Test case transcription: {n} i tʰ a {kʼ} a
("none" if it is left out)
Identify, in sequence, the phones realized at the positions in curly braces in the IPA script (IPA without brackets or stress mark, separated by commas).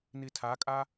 n, kʼ